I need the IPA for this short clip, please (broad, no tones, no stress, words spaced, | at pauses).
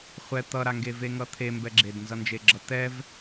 χʷɛ t̪ʌɾaŋɡe veŋʌt̪ʰembɛ ɡ͡ǁednzʌnd͡ʒeɡ͡ǁʌ t̪ɛv